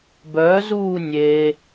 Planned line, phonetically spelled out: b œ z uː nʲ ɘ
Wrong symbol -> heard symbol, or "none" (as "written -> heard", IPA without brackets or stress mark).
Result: ɘ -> e